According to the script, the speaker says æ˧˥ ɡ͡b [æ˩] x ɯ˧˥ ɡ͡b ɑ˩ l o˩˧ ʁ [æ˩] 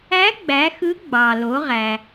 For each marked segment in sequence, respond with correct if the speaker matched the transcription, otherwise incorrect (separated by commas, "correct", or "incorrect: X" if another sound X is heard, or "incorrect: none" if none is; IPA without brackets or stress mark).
incorrect: æ˩˧, correct